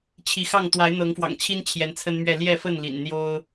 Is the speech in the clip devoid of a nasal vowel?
yes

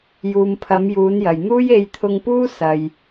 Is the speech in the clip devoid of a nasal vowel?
yes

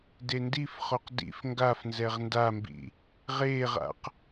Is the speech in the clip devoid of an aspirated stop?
yes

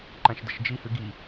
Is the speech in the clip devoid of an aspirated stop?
yes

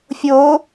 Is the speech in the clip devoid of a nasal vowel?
yes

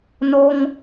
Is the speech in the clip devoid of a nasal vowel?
yes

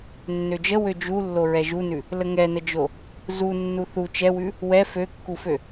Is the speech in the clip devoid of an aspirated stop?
yes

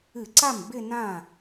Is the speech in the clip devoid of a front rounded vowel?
yes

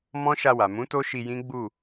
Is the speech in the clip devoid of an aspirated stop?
yes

